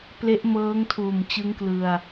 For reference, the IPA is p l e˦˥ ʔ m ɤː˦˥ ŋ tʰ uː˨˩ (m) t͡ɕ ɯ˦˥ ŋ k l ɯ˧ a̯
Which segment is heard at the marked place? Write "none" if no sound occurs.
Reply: m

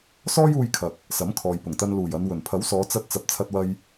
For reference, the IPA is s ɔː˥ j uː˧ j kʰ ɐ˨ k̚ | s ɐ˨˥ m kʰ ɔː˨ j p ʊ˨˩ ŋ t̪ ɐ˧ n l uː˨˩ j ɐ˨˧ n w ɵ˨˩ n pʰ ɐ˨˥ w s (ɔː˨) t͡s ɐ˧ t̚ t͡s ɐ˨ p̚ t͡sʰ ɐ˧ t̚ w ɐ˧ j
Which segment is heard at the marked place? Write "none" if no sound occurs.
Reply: ɔː˨˧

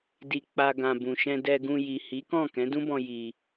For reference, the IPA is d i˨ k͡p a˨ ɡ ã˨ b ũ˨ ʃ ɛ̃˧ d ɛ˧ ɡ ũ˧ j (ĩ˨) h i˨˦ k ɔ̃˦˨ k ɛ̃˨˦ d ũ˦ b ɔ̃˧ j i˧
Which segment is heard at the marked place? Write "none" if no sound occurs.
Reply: i˨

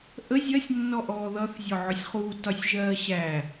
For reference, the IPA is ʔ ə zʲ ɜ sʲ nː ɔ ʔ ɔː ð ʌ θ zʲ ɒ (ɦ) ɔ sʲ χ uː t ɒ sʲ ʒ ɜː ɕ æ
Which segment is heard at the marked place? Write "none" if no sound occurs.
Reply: ʕ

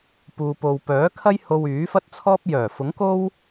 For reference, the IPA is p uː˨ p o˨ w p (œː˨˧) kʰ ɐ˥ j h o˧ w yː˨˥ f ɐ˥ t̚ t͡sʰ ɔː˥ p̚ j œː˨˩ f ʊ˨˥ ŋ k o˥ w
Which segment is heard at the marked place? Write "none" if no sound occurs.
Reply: œː˨˥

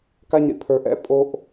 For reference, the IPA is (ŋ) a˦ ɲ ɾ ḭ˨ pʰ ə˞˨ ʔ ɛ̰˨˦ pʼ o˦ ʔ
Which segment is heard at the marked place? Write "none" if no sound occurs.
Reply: k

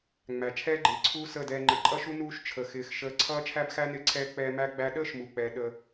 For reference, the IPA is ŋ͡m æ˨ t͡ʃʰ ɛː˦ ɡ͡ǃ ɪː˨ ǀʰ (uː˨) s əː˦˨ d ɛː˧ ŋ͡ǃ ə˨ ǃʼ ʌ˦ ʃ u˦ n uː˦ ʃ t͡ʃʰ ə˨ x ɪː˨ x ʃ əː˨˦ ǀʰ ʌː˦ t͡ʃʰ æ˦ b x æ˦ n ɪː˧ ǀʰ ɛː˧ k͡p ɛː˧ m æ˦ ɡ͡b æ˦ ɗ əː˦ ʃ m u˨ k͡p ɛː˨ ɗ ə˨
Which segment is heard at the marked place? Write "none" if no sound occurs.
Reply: uː˦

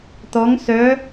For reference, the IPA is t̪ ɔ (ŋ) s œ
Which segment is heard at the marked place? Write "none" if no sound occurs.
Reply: ŋ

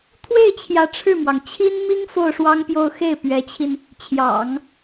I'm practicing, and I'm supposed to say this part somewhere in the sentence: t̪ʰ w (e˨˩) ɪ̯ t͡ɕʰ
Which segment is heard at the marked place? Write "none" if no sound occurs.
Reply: e˥˩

